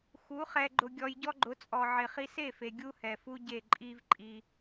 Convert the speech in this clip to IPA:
x u˨˦ χ ɛ˧ ɡ͡ǃ ʊ˧ ɡʲ ɔ˧ j ɟ ɔ˦ ɡ͡ǃ ʊ˨˦ t͡sʼ ɔ˨ ʕ ɪ˨ χ i˧ s e˦˨ f e˨ ɡʲ u˦ h ɛ˨ f u˦ ɟ e˦˨ ǃʼ i˦ v ǃʼ i˧

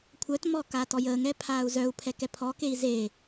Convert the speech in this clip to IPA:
kʷʰ œ t m ɔː k aː t ɔ j əː ŋ ɛ pʰ aː u̯ z œ u̯ pʰ ɛ k ɛ pʰ ɔː k e i̯ z e

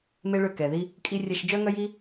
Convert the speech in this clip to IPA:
m e˦ ɭ ø˦˨ k ɛ˨ ð i˦ | kʼ i˧ rʲ ɛ˧ ʃ d͡ʒ œ˦ ŋ œ˦ j i˦

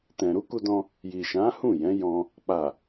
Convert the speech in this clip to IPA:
t ɛ̃˨ ɾ u˨˦ k u˧ d ɔ̃˧ | j i˨ ʃ ã˨˦ h ũ˦˨ j ɛ̃˨˦ j ɔ̃˧ | k͡p a˨

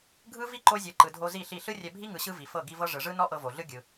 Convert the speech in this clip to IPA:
ɡʱ ɯ˦ v i˦ ǃ o˧ zʲ ɤ˨ ǃ ɯ˨ dʱ o˧ z i˦˨ ɬ i˦˨ ɬ ɯ˦ rʲ ɛ˧ bʱ i˦ ŋ ɯ˧ ɕ ɯ˦ v i˨ f ɤ˦˨ ɡ i˦ v ɤ˦ ʐ ɯ˨ ʐ ɯ˦ n ɔ˦ ʔ ɤ˧ v o˨ ɮ ɯ˦ ɡʲ ɯ˧

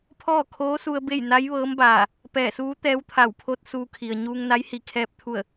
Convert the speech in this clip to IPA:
pʰ ɔː˥˨ kʰ oː˧˥ s u˧ ə̯ b e˥˨ j n a˧˥ j ʋ ɤː˧˥ m b aː˧˩ | p ɛː˧˩ s uː˧˥ t̪ ɛː˧˥ w t̪ʰ a˧˩ w pʰ o˧˥ t̚ s uː˧ kʰ i˩ ə̯ ɲ uː˧ ŋ n a˧˥ j h i˧˩ kʰ ɛː˧ p̚ t̪ʰ u˧˩ ə̯

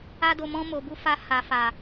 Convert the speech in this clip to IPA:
a˧ d o˨ m ɔ̃˧ m o˨ b u˧ f a˧ h a˨ f a˨

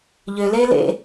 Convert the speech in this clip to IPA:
ʎ ø l eː l ḛ

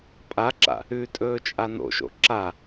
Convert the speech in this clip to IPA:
pʼ a ǁ a̰ | ʉ tʼ ɵː t͡ʃʼ a n o̰ ʃ o̰ ǁ a

